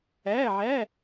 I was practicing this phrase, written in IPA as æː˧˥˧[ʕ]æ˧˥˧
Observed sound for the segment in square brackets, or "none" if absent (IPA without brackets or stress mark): ʕ